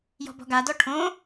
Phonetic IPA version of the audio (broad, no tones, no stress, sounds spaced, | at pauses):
j ɔ̤ b ɔ̤ ɡ a d ɔ ʈʰ õ